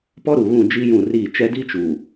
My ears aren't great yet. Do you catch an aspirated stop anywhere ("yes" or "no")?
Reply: no